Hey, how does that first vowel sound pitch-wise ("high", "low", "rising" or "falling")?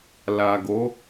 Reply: low